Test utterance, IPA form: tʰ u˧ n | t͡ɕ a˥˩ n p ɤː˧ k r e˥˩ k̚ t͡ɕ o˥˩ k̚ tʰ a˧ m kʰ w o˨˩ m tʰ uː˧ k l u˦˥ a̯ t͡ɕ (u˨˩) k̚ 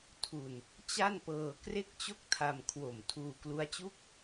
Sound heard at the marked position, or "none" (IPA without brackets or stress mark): u˥˩